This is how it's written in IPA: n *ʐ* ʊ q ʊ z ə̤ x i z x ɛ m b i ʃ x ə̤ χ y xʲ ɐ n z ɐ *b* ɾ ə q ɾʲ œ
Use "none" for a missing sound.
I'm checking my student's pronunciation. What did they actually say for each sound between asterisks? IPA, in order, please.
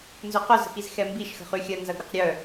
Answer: z, ɡ

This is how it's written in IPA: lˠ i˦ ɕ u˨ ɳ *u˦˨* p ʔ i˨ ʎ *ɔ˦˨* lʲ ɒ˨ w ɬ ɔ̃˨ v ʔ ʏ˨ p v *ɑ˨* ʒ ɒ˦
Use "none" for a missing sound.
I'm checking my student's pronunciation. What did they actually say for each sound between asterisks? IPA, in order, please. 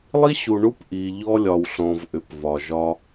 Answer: u˦, ɔ˦, ɒ˨

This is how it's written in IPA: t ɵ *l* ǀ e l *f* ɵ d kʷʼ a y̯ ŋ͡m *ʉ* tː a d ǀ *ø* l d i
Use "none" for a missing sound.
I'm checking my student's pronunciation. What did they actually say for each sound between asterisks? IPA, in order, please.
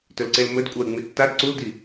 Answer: l, m, ʉ, u

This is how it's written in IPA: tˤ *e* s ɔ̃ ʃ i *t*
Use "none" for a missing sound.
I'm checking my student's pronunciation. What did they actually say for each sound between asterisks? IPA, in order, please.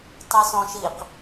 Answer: i, q

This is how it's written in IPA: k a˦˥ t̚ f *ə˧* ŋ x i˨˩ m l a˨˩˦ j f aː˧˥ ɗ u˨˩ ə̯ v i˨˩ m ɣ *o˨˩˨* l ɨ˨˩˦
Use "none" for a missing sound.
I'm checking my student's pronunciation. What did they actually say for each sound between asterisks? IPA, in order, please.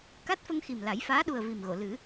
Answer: ə˧, o˨˩˨

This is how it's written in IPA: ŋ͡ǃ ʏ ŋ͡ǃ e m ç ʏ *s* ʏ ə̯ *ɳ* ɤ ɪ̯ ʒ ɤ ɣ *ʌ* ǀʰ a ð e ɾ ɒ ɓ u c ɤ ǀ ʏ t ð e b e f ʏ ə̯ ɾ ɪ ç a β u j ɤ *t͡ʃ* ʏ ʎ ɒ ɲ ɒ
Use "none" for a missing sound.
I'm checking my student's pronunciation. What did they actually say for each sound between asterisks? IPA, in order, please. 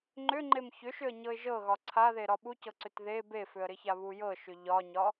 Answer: ʃ, ɲ, ɒ, ʃ

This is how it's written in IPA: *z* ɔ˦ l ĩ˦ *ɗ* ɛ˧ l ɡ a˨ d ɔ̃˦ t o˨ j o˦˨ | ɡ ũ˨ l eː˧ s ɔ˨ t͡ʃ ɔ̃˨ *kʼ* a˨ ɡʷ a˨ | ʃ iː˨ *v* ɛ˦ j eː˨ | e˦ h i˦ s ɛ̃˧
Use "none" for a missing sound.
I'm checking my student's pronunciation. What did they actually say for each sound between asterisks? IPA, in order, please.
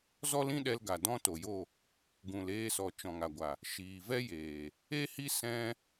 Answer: z, ɗ, ŋ, v

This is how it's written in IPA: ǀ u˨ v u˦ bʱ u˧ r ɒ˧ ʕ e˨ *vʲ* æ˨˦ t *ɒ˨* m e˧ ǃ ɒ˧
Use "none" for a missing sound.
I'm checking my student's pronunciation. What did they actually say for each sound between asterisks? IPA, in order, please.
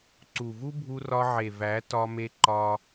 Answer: v, ɒ˧

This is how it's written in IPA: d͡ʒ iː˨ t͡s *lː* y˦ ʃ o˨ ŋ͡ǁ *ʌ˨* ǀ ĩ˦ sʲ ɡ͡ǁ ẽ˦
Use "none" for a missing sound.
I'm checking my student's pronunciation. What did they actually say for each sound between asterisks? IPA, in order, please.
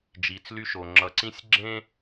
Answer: l, ʌ˨

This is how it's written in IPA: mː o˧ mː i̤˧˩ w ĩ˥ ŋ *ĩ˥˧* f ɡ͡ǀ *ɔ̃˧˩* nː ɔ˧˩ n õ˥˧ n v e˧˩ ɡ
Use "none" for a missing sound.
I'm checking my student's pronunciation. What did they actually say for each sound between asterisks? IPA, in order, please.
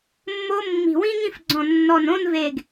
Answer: ĩ˥˧, ɔ̃˧˩

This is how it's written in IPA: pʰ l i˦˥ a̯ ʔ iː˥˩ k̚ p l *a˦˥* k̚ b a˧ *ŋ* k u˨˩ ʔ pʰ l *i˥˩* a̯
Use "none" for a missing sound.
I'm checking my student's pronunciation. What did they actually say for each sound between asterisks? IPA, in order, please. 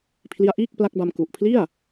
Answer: a˦˥, m, i˥˩

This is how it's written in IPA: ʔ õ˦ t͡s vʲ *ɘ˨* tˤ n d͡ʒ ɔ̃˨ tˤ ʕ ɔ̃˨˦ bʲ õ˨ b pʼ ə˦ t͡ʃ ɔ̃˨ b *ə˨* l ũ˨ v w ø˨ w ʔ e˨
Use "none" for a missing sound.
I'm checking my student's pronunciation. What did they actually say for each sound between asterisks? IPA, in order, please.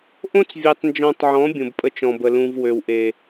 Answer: e˨, ə˨

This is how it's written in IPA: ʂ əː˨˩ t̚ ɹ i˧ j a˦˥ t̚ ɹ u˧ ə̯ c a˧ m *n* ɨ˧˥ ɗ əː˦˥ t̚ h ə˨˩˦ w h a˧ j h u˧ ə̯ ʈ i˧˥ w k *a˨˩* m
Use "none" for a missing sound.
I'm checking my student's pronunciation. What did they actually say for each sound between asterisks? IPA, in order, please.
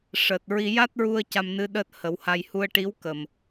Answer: n, ə˨˩

